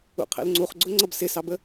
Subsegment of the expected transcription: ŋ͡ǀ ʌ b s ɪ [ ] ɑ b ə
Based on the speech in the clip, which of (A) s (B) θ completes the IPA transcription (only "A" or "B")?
A